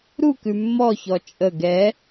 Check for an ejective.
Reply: present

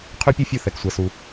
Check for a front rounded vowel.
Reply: present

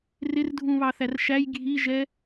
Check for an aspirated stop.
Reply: absent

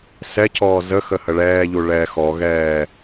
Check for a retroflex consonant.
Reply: present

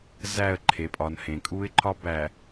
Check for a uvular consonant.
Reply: absent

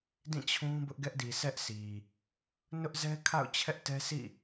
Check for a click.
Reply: absent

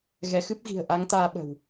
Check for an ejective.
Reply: absent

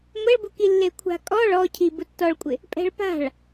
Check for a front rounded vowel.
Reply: absent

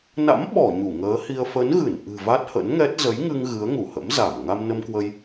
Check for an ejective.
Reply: absent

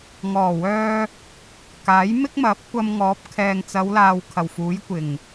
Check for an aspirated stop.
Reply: present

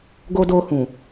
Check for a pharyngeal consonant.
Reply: absent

